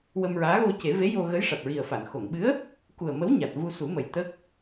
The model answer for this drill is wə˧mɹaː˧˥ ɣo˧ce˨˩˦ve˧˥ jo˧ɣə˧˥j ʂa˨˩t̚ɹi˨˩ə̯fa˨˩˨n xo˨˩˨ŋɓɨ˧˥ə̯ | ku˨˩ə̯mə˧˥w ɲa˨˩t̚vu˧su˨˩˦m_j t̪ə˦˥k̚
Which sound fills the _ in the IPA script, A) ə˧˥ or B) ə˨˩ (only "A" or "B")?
B